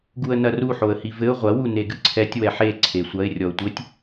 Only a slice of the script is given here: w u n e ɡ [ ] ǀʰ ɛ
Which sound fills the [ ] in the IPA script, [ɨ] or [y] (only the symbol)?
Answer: ɨ